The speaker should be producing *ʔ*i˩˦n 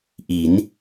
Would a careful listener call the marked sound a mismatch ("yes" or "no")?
no